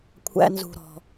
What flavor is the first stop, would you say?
aspirated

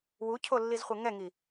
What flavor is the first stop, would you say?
aspirated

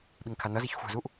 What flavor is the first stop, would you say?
implosive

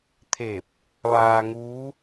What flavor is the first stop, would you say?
aspirated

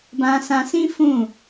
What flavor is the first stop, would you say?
plain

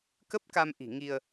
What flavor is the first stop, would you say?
plain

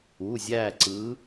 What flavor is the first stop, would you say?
click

